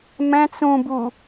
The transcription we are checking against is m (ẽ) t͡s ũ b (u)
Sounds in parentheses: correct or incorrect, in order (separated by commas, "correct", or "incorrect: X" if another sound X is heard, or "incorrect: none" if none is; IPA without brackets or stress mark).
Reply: incorrect: ɛ̃, correct